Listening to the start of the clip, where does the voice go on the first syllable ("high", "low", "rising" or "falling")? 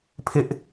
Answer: high